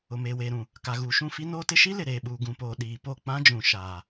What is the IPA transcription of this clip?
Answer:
ʊ˨meː˨weː˨ɾũ˨ | ka˨ɣuː˨ʃũ˦˨fi˦ noː˦tɪ˦ ʃi˦ lɪ˨ɾeː˨ɓuː˨ ɡũ˨poː˨ ɗiː˨po˦˨k͡pã˦d͡ʒũ˨ ʃa˨

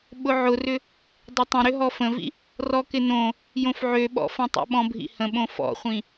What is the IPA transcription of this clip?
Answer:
ɓʊʕʊrʏ | dˤətˤə̃ ɾʏɦɔfə̃vḭ | rɔkɪnõ | jõfʕøɓɔ̰fɐ̃ tˤo̰ɓɔ̃bʱḭhə̃ ɓõfɔ̰χʷĩ

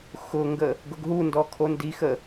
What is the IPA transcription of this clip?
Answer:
xʊŋɡə | ɡʊɡɦundɔ kʰondixə

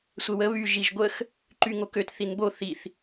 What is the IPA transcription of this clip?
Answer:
sʷɛwə βy ʒiʒɡʷəx | ǃyŋokøt θinbo θiθ

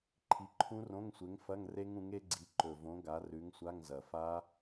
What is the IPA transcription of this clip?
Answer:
ǃʰi˨˥ǃʰũ˦˥rõ˧˥˧ŋsʷe˨˥ŋ fɐ˧˥˧ŋre˦˥ŋũ˨˥ŋ e˦˥ɡ͡ǀi˨˥ǃɵ˨˩võ˨˥ ɡa˨˥rʉ˨˥ŋsʷa˧˥˧ŋzɐ˨˩ fa˦˥

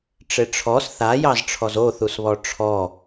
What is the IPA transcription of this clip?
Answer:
ʈ͡ʂeʈ͡ʂʰɔs θa jɑzʈ͡ʂʰɔzoθus βɔʈ͡ʂʰɔ

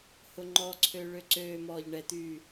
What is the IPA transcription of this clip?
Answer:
hʊŋ͡ǃɔǀʰø ɭøǀøːmɔːʎ ɳɛt̪yː

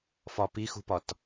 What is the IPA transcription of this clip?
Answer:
fɒpixṳpɒt

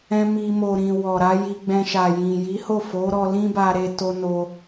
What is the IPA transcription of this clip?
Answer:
ɛ̃˧ mi˧ mo˨ɾĩ˨ wɔ˨ɾa˨˦ ji˧ɡ͡bɛ̃˧ʃa˨jĩ˨ ji˨˦ho˦˨ fo˨˦ɾɔ˧ lĩ˦ba˧ ɾe˧ to˧no˧

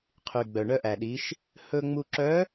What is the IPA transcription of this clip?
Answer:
qʰy˩ ɡ͡bœ˩ɳœ˧ʔæ˩ɗi˩˧ʃ | hɵ˧ ŋ͡mu˧ǁœ˧˥

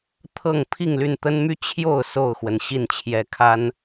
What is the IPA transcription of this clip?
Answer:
t̪ʰɤ˥˨ŋ pʰi˥˨ŋly˥˨nt̪ə˦nmy˦ t͡ɕʰjo˥˨ʊ̯ so˥˨ʊ̯xwə˩n ɕi˥˨nt͡ɕʰjɛ˨˦kʰa˨˦n

